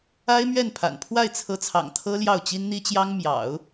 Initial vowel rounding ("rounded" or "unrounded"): unrounded